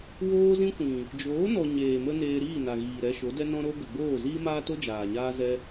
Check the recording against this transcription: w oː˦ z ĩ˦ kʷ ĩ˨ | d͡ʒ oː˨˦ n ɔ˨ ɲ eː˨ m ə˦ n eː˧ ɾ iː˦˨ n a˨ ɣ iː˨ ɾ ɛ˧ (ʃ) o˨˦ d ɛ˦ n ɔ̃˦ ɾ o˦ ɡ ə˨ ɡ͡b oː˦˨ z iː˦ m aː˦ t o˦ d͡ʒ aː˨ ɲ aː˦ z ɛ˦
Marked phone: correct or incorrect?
correct